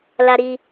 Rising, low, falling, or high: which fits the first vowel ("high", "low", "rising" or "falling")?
high